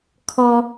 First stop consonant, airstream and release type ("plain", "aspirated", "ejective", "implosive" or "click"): aspirated